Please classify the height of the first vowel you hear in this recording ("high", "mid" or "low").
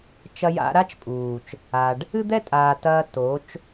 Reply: low